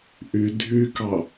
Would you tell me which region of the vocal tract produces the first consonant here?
throat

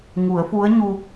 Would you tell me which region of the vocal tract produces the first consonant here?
velum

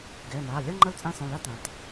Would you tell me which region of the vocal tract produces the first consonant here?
velum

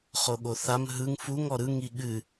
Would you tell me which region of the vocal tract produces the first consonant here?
uvula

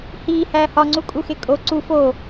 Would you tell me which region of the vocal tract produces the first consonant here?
throat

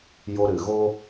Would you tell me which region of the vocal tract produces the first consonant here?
palate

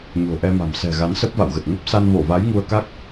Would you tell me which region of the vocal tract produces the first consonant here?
palate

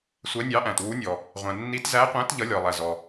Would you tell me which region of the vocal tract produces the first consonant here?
tongue tip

